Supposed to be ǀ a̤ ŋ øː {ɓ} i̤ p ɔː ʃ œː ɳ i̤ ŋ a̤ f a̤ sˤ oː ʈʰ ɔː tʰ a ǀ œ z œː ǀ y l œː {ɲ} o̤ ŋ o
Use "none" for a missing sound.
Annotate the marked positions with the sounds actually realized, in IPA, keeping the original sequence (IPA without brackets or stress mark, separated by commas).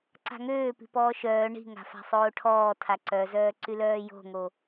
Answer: p, j